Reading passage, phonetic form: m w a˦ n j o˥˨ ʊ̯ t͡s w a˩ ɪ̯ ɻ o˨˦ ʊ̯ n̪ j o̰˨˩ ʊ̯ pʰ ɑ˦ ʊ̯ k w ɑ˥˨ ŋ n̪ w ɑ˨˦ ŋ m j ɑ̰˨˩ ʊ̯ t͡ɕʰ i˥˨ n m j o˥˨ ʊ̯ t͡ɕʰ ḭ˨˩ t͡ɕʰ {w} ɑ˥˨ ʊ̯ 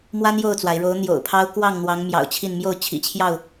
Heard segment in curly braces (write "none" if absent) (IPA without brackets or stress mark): j